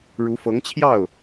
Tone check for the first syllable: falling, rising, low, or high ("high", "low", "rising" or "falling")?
rising